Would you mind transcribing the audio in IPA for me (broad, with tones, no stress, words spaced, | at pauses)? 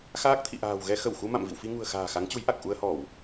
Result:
xaː˦˥k̚t̪ʰḭ˧˨ʔa̤ː˨˩w ɣɛ˧ xə˧˩wxu˧ ma̰˧˨m vḭ˧˨wfi˧ ŋṳ˨˩ə̯xa̤ː˨˩ xa˨˦ŋt͡ɕu˨˦jʔa˨˩k̚ ʔu˧ə̯hɔ˧˩˨w